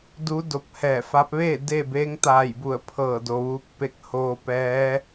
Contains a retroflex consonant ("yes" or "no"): no